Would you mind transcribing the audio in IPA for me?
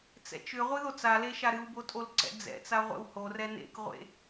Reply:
t͡s ɛ̰ t͡ʃ ʏ ʁʷ ɨ ð o t͡s a l e ʃ a ɾ ɨ w b o tʼ o l ǀ ɛ̰ d͡z ɛ̰ t͡s a ʁʷ ɛ̰ w h o r ɛ n ḛ k ʁʷ ḛ

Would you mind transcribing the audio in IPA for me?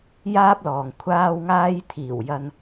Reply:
j aː˥ p̚ l ɔː˨ ŋ kʷʰ aː˥ w ŋ aː˥ j t̪ʰ iː˨˩ w j ɐ˧ n

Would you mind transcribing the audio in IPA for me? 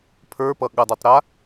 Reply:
pʰ ə˞ p ʌ ɠ ʌ dˤ i tˤ ɾ a

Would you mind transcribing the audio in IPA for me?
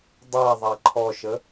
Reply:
dˤ a ðˤ a ǃʰ ɔ ʃ ə

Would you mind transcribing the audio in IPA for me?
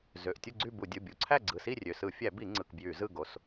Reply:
z ø˩˧˩ ʔ tʲ u˥˨ ɡ͡ǀ y˥˨ b u˧˩˧ dʲ ɯ˩˧˩ bʲ u˩˧˩ ǀʰ æ˥˨ ɡ͡ǀ ɯ˩˧˩ s i˥˨ rʲ ø˩˧˩ s ɯ˧˩˧ fʲ æ˧˩˧ b i˧˩˧ ŋ͡ǀ ɯ˩˧˩ k b j y˧˩˧ z ɯ˥˨ ɡ o˩˧˩ s

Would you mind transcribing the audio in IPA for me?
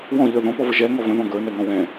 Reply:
w ɔ̃ ʎ ə˞ ð ɔ̃ p ɔ v ə ʒ ɛ ŋ ɔ v ə̃ ð ɔ̃ ɡ ə˞ n ɛ ŋ ɔ̃ w ɛ̃

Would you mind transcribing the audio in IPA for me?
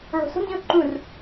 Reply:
ɭ o̤ s o̤ n d ĩ ʊ̯ ǃ ũ r

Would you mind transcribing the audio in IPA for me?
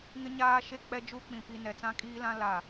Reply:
ŋ ɪ˦ ɲ aː˦ ʃ e˦ k͡p ɛ˦ d͡ʒ u˦ k͡p ĩ˨ p i˨ n ɛ˨ t͡s ã˦ kʼ iː˦ l ã˦ l a˨

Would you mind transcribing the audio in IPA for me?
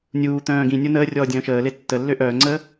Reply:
nʲ uː t̪ œ̃ː ɡ ĩ nʲ o n əː rʲ ɔː dʲ œ̃ː ʃ əː l e tː ə lː ø ʔ œː ŋ͡ǀ əː

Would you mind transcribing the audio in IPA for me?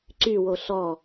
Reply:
ǀ y w o ɬ ɔ

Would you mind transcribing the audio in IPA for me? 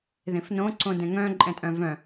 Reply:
ð ẽ f n õ ǀ õ d ɛ̃ ŋ œ̃ ǃʼ ɛ̃ tʼ œ̃ v œ̃

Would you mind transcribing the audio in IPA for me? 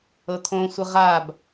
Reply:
ɤ t̪ʰ õ sʷ ə ʁ a b

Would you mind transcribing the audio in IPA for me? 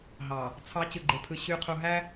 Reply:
ɦ ɑ˨ | t͡sʰ ɑ˨˦ t͡ɕ ɯ˨ ɡ͡ǃ e˨ pʰ ɯ˨ ɕ y˨ qʰ u˨ ɦ æ˦

